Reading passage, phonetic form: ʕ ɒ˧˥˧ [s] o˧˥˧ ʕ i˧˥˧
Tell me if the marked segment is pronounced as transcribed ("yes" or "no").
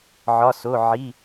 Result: yes